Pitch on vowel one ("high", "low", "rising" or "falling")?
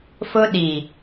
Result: high